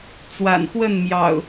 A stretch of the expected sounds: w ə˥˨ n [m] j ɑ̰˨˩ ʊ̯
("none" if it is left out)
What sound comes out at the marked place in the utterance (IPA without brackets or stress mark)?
m